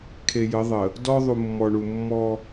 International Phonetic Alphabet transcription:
kʰe˨jə˨˦ðˤə˨ | dɔ˦ ðˤu˨mːɔ˨ɳu˨ mːɔ˦

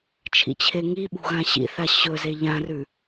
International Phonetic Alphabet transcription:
t͡ʃʰḭt͡ɕʰeŋiɓṳ ɣãɕḭθa ɕɵze ʎãrʉ

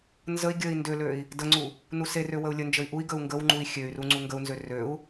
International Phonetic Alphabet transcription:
nzəi̯ ɡʲəi̯ ndøløi̯ | dəŋ͡ǀu | nuserø wəu̯lʲənd͡ʒəi̯ ʔui̯ɡəu̯ ŋɡəwŋ͡ǃui̯ xʲøy̯ru ŋ͡ǀuŋɡəu̯nzø røu̯

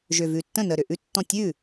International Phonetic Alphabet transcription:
ʒʏ˨˩ vʉ˨˩tːə̃˥˩ nə˨˩ ɾʏ˨˩ʔʉ˥˩tːɔ̃˥˩tʲ ʉ˥˩

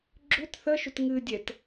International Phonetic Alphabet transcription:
ɡ͡ǁʏt θəʃʏt ŋɨdʲɛt

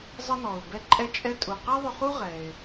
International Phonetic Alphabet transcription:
zˤə˧nɔ˩ʊ̯bɛ˧ ǃʼɛ˧t͡ʃʼɛ˧ tʼu˩qɛ˥ðˤʏ˧χu˥ ʁɛ˩ɪ̯

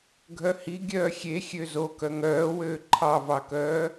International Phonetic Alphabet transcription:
ɡʱœhi ɡʲœːxʲe xʲøzokœ ŋœːwøː ǃʰɑvɑkœː

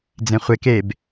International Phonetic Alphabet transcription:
d͡zẽχʷek eb

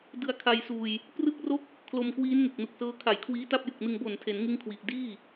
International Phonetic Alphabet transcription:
dɯ˧a̯kʰa˧jsuː˧j | prɯ˥˩k̚ro˥˩k̚ | kʰlo˧mkwiː˦˥nŋe˨˩k̚ nu˨˩k̚sɤː˦˥ kʰa˨˩jkʰwiː˦˥ ta˥˩p̚jɯ˨˩k̚nɯ˧ŋ bo˨˩ntʰe˩˦n ŋɯ˥˩ŋkʰwi˨˩ʔ diː˥˩

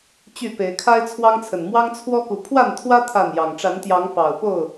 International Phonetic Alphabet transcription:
t͡ɕy˥˨pe˨˦ɪ̯ kʰa˦ɪ̯t͡sʰwɑ˦ŋt͡sʰə˨˩n mwɑ˦ŋt͡sʰwɔ˦ku˨˦ pʰwa˥˨nt̪ʰwä˦ t̪ʰa˥˨njɑ˨˩ŋ ʈ͡ʂa˨˦nt̪jɑ˨˦ŋ pɑ˨˩ʊ̯po˥˨ʊ̯

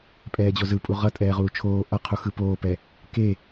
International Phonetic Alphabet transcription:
pʼɛːd͡ʑozɯpʼu ʁʌ tʼɛːʁuːt͡ʃʰoː ʔʌqʰu xɯpoːpɛ | ke

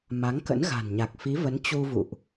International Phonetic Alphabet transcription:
ma˨˦ŋkə̰˧˥n ɣa̤˨˩nɲa˨˩k̚ fi˨˦və˨˦n t͡ɕu˧vṵ˧˨ʔ

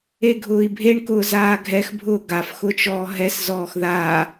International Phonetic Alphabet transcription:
eɡʱʊːi̯bʱeɳ kʊːzaːɡʱɛx bʱʊːɡaf xʊt͡ʃɔːɦɛs zɔːxða

